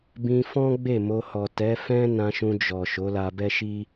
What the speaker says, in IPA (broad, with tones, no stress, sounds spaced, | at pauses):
b ĩ˧ f ɔ̃˦ ɡ͡b e˦˨ m o˧ h ɔ˨ t ɛ˨˦ f ɛ̃˦ n ã˧ ʃ ũ˧ d͡ʒ ɔ˨ ʃ o˨˦ l a˧ b ɛ˦ ʃ i˦